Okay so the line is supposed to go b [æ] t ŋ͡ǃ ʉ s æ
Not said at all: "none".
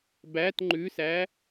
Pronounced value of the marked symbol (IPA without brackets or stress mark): æ